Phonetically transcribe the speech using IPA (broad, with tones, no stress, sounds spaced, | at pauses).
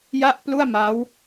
j a˥˩ ʔ p l u˥˩ a̯ m a˦˥ w